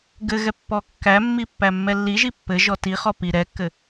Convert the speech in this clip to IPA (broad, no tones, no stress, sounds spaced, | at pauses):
ɡ ɘ ɣ ɛ pː ɔ kː æ mː i pː æ mː ɛ lː i ʒ i pː ɘ ʒ ɔ t i χ ɔ p i ɾ ɛ kː ɘ